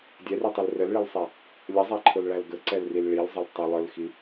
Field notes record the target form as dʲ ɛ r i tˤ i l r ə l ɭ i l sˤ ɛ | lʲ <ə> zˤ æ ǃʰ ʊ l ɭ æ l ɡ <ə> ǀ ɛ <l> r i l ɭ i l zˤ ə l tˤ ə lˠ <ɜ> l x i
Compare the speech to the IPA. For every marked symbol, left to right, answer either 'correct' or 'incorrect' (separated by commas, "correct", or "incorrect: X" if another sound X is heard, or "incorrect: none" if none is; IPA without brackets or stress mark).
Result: correct, correct, correct, incorrect: ə˞